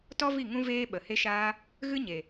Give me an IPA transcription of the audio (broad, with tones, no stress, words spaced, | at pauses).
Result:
tɔ˦vi˦˨ ŋũ˦veː˦ ɓə˨ he˧ʃaː˧ | ɣɨ˦ ɲe˨